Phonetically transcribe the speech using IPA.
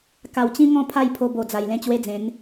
k a˨˩ w t͡ɕ ĩ˦ ŋ ɔ̃˥˧ pʰ a˥˧ j pʰ o˧ b o˨˩ d͡z a˨˩ j l ẽ˥˧ t͡ɕ w e˦ d͡z ẽ˨˦ n

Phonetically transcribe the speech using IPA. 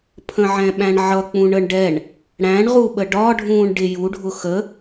pʰ ə̃ ʕ ɛ̃ ɓ æ̃ ɳ ʕ ʌ k͡p ũ ɳ ə ɳ ɖ ɛ ɳ | ɽ æ̃ ɳ ʁ u ɓ ə ɖ ɒ ɖʱ ũː ɳ ɖ ɪ j u ɖʱ ʊ x ə

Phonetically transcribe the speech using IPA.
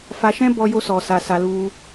f a˧ ʃ ɛ̃˦ b ɔ˧ j o˦ s ɔ˧ s a˧ s a˧ l u˧

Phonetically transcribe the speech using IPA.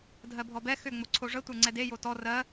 dʱ ɜ bʱ ɔ b ɛ x ʏ ŋ͡m o ǀʰ o ʐ ə tʷ ə˞ ŋ͡ǀ ɛ d e j o t ɔ r ɜ

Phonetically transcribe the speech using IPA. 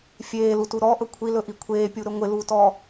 fʲ eː l u t u ɾ ɔ ʔ ɵ kʷʰ i l ɵ ʔ i kʷʰ eː pʲ u ɾ ɵ ŋʷ ɪ l u t ɔː

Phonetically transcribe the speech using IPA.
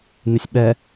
n ɪ sʲ ɓ ɛ

